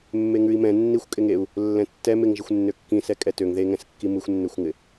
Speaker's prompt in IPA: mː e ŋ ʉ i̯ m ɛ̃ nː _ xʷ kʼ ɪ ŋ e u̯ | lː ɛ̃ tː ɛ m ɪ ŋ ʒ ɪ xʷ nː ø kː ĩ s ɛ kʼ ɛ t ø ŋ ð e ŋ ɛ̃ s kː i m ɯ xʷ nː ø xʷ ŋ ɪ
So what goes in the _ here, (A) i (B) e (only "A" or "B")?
A